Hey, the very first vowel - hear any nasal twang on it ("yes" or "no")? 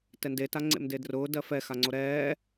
no